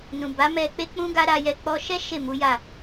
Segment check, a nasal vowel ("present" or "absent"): present